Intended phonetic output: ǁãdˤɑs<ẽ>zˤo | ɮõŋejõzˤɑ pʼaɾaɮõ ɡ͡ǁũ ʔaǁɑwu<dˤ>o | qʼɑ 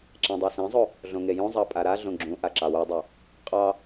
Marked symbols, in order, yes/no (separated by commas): yes, yes